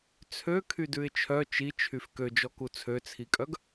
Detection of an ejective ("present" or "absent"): present